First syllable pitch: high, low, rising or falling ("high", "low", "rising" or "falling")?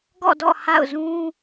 falling